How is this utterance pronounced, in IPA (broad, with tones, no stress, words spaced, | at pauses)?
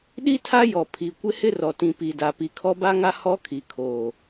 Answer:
ɗi˦ tʰa˦jɔ˨ pʰi˨ kʷɪ˦hɪ˦rɔ˨ tĩ˨pi˨da˨ pi˨kʰɔ˦ba˦ŋa˦ hɔ˦kʰi˨kʰoː˨